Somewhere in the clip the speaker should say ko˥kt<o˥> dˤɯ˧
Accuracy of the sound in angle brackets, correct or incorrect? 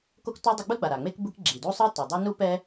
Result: incorrect